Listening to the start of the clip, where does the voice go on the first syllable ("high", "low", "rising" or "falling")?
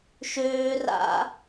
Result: high